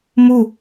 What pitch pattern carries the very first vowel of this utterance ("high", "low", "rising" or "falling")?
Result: falling